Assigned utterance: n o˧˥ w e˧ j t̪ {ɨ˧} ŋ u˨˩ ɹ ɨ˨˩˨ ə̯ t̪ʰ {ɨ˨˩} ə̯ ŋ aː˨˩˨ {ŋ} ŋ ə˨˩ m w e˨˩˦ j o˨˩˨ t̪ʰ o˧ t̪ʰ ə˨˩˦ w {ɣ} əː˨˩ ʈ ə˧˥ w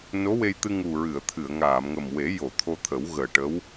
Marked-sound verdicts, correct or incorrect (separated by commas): correct, incorrect, incorrect, correct